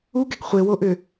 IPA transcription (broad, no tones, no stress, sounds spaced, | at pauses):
u ɡ ɛ ɡ χʷ e w o ʔ ʏ